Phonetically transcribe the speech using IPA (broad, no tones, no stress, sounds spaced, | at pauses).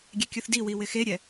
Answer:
ɡʲ ɛ kʲ u θ d i w i w ɪ x e ɾʲ ɛ